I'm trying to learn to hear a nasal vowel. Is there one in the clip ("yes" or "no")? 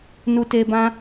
yes